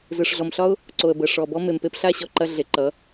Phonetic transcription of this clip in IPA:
z ɯ˨ ʂ ɮ ɔ˨ m ɬ ɒ˦ ʊ̯ | ǀ o˨ ə̯ b ə˨ ʂ ɔ˨ b ɔ˧ m e˨ m p e˧ p ɬ a˦˨ ɕ ɔ˧ ǃ ɐ˧ ɮ e˨ ǃ ʌ˨˦

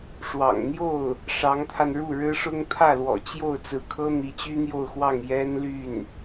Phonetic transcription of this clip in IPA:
ʂ w ɑ̰˨˩ ŋ n̪ j o˥˩ ʊ̯ | ʂ ɑ˧˥ ŋ t̪ʰ a˧ n ɻ u˥˩ ɻ ɻ̩˥ ʂ ʊ˥ ŋ t̪ʰ ä˥˩ l w ɔ̰˨˩ t͡ɕ j o˥˩ ʊ̯ t͡s ɹ̩˧˥ kʰ ɤ˥ n̪ i˧˥ t͡ɕ y˥ n̪ j o˥˧ ʊ̯ x w ɑ˥˩ ŋ j ɛ˥ n l y˥˩ n

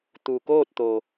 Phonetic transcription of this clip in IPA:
t̪ u˩ k oː˥˨ t̚ t̪ o˩

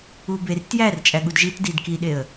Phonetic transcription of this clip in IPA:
u b e r t j æ r t͡ʃʼ æ ɠ u d ʒ i t d i d k i ɗ e ə̯

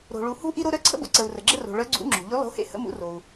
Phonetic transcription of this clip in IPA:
ɾ o̤˩ ɭ u˩ h ṳ˦ ʔ i˦ ɾ o˦ ɾ œ˨˥ ǀʰ ə̰˦ b o̰˩ ǀ ə˩ u̯ r ə˩ ɡ͡ǁ ə˦ r o̤˩ ɭ œ˨˥ ɡ͡ǀ ṵ˨˥ ŋ͡ǁ o̤˩ ʎ y˨˥ lˠ o̤˨˥ h ḛ˦ h ə̰˦ m ṵ˨˥ r o˩ u̯

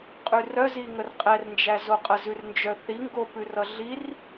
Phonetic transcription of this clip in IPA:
qʼ ʉ r œ z i ŋ ə r qʼ ɛ r n d͡ʒ æ z o qʼ ə z ʉ r n d͡ʒ œ θ i ŋ ɡ o p ʉ r ʌ ɮ i r

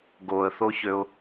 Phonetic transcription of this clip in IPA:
ɡ o ə̯ θ o ç ø ʊ̯

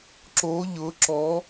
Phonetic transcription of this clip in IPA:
ǁ o˦˥ ʎ ʊ˦˥ ǁ ɔ˦˥

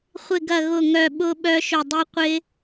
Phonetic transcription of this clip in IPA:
χʷ ɪ˦˨ ɡ ɐ˦˨ ɣ ʊ˦˨ ŋ œ˦˨ ɓ ʊ˦˥ ɓ œ˦˥ ʃ ʊ˦˨ dˤ i˦˥ qʷ ɪ˦˥

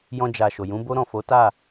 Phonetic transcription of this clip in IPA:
j ɔ̃˧ d͡ʒ a˨ ʃ o˨ j ũ˨˦ b o˦ ɾ ɔ̃˦˨ f o˨˦ t a˦˨

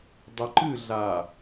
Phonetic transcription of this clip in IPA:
dˤ e ǃ ɨ ɮ a

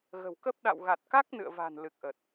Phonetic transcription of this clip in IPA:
ɣ ə̤˨˩ w k ə˦˥ p̚ ɗ a̰˧˨ w ɣ a˨˩ t̚ k a˦˥ k̚ n ɨ̰˧˨ ə̯ v a̤˨˩ n l ɨ˨˩ k̚ ʔ ə˨˩ t̚

